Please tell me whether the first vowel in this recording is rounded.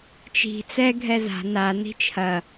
no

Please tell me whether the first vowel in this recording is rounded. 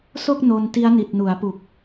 yes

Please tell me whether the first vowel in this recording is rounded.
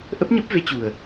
no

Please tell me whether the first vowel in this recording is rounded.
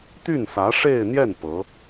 yes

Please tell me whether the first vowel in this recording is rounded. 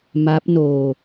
no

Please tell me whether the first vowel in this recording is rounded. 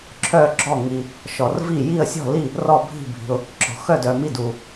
yes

